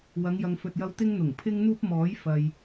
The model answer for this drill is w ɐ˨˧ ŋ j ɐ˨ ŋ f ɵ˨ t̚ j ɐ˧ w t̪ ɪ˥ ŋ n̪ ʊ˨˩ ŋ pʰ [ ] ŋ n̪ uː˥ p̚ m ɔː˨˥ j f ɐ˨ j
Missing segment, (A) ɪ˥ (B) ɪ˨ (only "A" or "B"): A